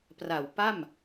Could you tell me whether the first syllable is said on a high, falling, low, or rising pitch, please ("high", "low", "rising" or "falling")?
low